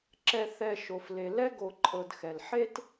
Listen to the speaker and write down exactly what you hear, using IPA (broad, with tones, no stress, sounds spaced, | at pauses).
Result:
ǁ ɛ˨ θ ɛ˨ ʃ o˩ f l e˩ l ɛ˦ ɡ o˨ ǃʼ ɤ˨ d x ɛ˩ l ħ e˥ t